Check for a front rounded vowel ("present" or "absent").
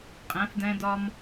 absent